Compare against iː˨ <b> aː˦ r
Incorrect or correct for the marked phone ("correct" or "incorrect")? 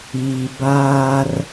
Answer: correct